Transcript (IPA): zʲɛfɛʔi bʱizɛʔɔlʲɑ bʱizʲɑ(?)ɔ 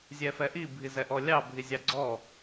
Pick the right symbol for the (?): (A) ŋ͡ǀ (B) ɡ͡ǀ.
B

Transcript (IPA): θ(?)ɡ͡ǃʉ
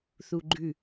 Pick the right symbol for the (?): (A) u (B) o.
A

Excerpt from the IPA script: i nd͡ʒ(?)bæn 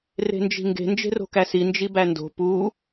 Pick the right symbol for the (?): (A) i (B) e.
A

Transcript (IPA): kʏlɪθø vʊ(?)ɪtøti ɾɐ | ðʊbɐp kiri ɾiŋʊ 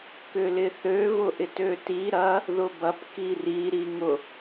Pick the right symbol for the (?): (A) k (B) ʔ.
B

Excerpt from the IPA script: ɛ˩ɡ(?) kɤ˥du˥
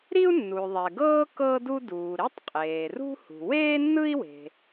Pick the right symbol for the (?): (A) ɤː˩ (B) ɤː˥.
B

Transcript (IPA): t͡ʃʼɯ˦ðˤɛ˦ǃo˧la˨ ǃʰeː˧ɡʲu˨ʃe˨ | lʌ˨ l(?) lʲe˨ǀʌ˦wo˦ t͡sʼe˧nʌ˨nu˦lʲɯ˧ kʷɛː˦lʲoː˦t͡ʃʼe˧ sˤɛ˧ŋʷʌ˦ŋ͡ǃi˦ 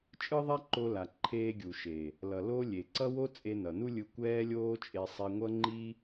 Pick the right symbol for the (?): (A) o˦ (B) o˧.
A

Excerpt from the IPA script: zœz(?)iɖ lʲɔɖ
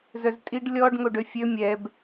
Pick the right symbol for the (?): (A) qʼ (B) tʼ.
B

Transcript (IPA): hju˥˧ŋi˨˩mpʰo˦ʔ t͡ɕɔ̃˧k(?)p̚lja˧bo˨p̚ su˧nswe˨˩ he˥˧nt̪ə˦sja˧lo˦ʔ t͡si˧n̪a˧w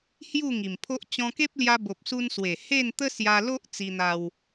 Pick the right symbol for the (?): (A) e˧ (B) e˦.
B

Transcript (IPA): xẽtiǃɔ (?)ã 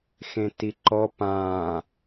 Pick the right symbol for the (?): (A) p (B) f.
A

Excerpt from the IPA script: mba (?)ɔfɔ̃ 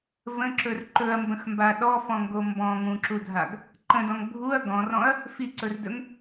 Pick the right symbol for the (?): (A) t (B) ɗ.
B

